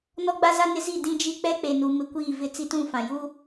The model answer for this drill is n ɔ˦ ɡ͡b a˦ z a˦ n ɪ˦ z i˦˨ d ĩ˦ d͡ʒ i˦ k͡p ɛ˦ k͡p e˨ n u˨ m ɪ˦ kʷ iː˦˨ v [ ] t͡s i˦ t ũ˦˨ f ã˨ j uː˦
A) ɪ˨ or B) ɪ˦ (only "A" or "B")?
B